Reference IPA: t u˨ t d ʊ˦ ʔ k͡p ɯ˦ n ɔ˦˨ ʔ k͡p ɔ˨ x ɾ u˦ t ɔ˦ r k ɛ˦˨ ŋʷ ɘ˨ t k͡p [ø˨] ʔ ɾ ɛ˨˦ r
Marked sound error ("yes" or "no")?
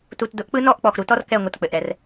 yes